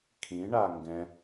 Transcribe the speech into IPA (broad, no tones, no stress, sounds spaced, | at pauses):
kʰ ĩ ɳ a ŋ ɡ ɛ̃